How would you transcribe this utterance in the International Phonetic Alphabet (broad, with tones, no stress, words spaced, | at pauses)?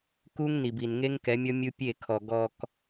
ku˦ŋni˨b i˨nŋe˦ŋkɛ˨˦mʲɔ˦ mʲu˦pʲe˦˨kʰɔ˨ ɡɔ˨k